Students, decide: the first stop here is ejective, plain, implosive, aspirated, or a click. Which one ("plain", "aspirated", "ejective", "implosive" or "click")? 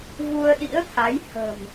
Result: implosive